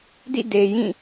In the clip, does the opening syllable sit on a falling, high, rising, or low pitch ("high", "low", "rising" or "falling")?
falling